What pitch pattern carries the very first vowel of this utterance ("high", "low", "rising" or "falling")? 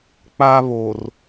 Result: high